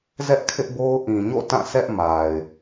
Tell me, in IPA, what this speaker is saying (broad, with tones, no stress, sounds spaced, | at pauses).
z ɛ˦ ʔ kʰ ɪ˦ ʔ b o˦ ʊ̯ ʔ ĩ˨ ɲ o̰˦˨ t ã˦˨ sʰ ɛ˦ ʔ m a˨ ɪ̯